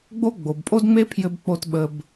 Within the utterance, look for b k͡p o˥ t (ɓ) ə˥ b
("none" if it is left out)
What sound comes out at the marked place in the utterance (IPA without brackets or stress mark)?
ɓ